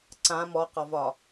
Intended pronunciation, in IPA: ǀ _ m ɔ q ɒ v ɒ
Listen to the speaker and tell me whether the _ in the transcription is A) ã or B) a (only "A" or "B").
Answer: A